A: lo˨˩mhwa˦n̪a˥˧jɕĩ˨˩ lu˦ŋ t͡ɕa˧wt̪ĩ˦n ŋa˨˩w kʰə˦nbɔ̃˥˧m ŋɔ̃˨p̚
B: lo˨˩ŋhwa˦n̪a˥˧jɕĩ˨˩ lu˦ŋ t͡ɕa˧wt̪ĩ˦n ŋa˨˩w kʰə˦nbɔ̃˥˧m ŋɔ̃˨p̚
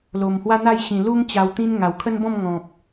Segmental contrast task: A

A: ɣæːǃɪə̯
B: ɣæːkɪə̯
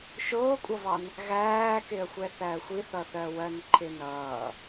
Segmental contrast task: B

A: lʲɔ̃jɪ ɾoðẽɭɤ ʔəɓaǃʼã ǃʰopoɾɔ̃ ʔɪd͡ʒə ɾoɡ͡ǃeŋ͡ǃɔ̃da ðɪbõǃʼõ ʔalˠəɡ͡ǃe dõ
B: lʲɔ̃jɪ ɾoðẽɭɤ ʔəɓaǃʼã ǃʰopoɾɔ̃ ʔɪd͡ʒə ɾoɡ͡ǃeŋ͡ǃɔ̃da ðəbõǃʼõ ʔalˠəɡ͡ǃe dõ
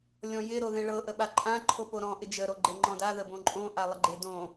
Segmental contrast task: B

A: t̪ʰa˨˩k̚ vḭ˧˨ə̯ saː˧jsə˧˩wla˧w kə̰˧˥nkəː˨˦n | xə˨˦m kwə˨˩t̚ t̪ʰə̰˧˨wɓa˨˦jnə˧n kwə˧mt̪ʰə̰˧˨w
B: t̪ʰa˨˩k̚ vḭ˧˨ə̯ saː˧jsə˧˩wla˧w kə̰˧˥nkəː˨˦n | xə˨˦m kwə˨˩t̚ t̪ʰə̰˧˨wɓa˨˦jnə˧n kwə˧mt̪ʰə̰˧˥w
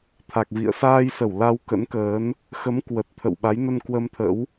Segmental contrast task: B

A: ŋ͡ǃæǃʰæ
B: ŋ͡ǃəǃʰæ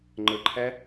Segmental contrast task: B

